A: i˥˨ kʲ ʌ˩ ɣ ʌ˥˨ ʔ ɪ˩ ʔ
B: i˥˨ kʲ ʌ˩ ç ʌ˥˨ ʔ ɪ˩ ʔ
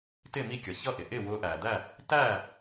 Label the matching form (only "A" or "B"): B